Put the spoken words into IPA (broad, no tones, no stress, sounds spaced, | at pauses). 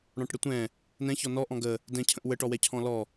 ɽ ɔ̃ ʈ ɽ ə tʷ ɛ̃ | n ɛ̃ ç ɔ n ɔ ʔ ɔ̃ ɡ ə | d ɛ̃ cʰ ə̃ ʔ w ə ʈ ɔ w ɛ cʰ ɔ̃ l ɔ